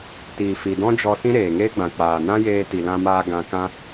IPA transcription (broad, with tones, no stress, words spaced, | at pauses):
tiː˨fi˨dɔ̃˦d͡ʒɔ˧ sĩ˦ɾeː˨ŋeː˦ɡ͡bã˨ k͡paː˨nã˦jeː˧ ti˨lã˧maː˧ ɡã˧kã˦